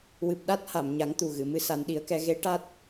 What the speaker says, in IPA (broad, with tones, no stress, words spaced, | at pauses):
wɨ˨˩p̚ɗa˦˥t̚ha˨˩˨m ɲa˨˩˦ŋt̪u˨˩ɣɨ˨˩˨mɨ˧ sa˨˩˦nɗi˨˩˦ə̯kɛ˧ ɣe˧˥ ʈa˦˥t̚